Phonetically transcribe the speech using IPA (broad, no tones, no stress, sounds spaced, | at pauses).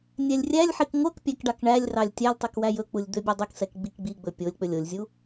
nʲ æ lʲ rʲ æ lʲ ħ i k ŋʷ œ k pʲ æ k ɖ ɑ k ɳ æ lʲ r ɑ lʲ tʲ æ lʲ tˤ i k w æ j ɵ k͡p u lʲ d̪ ø bʲ ɛ dˤ e k s ɛ k ɡ͡b i k ɡ͡b i ɡ͡b ɵ pʲ o lʲ k͡p ɵ lʲ o lʲ zʲ u